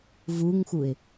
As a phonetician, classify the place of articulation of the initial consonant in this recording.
labial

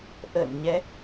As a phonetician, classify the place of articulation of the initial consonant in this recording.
glottal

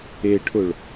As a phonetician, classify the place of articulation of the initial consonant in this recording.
retroflex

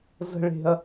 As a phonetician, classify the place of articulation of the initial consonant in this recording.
alveolar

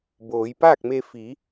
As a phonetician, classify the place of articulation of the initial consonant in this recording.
labial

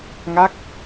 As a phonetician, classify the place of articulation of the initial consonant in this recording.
velar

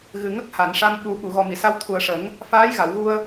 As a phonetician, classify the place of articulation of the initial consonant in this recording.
velar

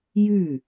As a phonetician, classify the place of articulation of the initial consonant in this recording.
palatal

